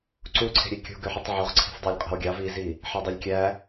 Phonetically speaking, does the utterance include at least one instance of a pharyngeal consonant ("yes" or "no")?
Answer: yes